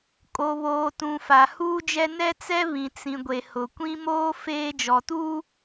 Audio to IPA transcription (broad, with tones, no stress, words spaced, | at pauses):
kʼo˨βoː˨tũ˨ fa˨huː˦d͡ʒɛ˦ nɛ˦t͡sɛ˦βĩ˨ t͡sĩ˨ɡʷe˨hʊ˨kʷĩ˦ moː˦ feː˦ d͡ʒɔ˨tuː˦